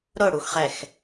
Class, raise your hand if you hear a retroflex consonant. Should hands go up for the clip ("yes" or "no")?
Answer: yes